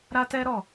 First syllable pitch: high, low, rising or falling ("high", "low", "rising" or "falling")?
high